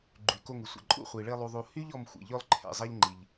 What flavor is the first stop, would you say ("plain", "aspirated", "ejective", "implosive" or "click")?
click